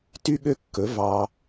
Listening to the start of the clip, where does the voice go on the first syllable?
high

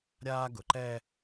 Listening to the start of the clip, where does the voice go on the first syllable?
high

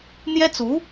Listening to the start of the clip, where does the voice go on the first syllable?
high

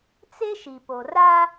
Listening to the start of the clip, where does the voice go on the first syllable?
high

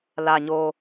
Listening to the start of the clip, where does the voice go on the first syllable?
low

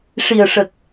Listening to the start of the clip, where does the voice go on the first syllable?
low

